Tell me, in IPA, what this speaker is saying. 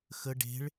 x ə ɖ e̤ ɭ

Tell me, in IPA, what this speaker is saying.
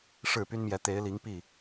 ʂ ɻ̩˥˩ p y˥ n m j ɛ˧˥ t̪ e˧˥ ɪ̯ l i˧˥ ŋ p i˥˩

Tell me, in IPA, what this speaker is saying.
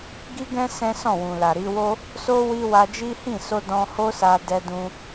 ɡ i˦ ɡ ɛ̃˦ s ɛ̃˦ s ɔ̃˦˨ w ũ˨ l a˨ ɾ i˧ w o˦ | s o˦ w i˧ w a˧ d͡ʒ i˦ h ĩ˦˨ s o˧ d ɔ̃˧ h o˦ s a˧ d ɛ˧ d ũ˧

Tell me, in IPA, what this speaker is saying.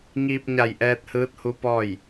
ŋ iː˧ p̚ ɲ a˧˩ j ʔ ɛː˧ t̚ h ɯː˧˥ t̚ h u˧˥ p ɔː˥˨ j

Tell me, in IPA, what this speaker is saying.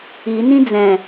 i n ĩ d͡z ɛ̃

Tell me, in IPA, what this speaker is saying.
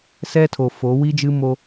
s ɛ˦ tʰ o˨ f o˨˦ w i˦ d͡ʒ ɨ˦ m o˦

